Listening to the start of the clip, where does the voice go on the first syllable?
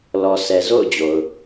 low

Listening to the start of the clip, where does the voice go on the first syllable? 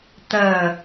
low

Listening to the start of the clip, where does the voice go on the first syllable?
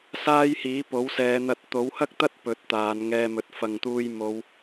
high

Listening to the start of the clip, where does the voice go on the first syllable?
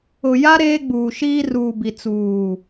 low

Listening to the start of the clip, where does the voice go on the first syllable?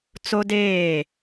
high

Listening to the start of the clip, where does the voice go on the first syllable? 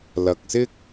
low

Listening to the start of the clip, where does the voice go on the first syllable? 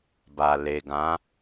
low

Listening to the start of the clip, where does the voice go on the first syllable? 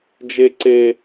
high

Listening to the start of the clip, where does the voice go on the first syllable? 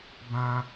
high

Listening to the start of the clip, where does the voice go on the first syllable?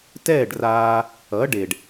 falling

